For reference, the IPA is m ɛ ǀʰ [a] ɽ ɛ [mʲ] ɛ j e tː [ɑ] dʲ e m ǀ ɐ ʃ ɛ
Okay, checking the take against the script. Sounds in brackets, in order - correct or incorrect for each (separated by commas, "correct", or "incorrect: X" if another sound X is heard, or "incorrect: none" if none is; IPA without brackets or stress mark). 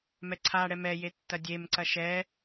correct, incorrect: m, incorrect: ɐ